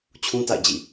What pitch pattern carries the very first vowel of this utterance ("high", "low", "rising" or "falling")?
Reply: high